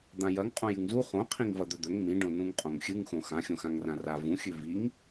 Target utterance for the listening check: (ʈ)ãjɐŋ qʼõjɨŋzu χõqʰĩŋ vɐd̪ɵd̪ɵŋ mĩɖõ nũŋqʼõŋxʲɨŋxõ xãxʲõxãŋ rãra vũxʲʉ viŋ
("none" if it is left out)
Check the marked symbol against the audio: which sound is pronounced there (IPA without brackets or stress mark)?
d̪